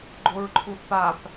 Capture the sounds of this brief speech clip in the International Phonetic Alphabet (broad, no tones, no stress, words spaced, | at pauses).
ɡ͡ǃoɹǃʰuθpap